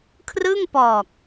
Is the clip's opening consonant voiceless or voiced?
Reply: voiceless